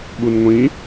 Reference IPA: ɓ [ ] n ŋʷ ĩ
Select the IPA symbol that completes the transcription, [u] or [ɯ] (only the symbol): u